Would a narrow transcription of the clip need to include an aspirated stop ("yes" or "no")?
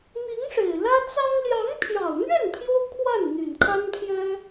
yes